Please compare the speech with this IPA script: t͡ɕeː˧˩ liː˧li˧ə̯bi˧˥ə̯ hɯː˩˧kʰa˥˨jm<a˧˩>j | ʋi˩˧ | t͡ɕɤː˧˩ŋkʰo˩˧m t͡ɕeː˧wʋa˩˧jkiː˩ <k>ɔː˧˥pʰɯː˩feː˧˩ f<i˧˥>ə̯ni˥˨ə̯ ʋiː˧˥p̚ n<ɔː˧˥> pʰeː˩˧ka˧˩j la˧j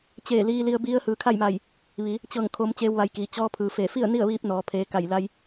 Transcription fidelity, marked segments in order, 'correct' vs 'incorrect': correct, incorrect: t͡ɕ, incorrect: i˥˨, incorrect: ɔː˩˧

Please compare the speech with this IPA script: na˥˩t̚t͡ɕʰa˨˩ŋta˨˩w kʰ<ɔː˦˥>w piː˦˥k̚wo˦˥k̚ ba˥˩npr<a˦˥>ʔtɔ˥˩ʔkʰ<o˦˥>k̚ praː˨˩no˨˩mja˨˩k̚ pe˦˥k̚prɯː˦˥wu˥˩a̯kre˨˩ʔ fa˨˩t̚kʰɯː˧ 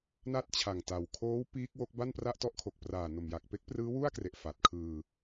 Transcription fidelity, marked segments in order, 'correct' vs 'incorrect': incorrect: oː˦˥, incorrect: a˥˩, incorrect: o˨˩

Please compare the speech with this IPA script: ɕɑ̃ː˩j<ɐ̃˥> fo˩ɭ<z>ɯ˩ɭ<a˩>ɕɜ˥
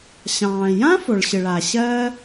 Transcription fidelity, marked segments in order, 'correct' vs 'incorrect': incorrect: ã˥, incorrect: ɕ, correct

